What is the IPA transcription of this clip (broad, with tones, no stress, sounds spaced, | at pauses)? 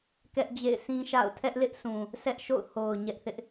k ɛ˦ ʔ d͡ʑ ḛ˦˨ ɪ̯ sʰ ĩ˦ ʃ a̰˦˨ ʊ̯ tʰ ɛ˦ ʔ l ɪ˦ ʔ sʰ ũ˨ | s ɛ˦ ʔ ʃ o̰˦˨ ʊ̯ h o˨ ʊ̯ ɲ ɛ˦ ʔ θ ɪ˦ ʔ